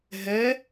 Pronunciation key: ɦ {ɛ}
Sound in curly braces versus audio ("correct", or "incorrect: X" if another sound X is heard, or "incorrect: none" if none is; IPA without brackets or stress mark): correct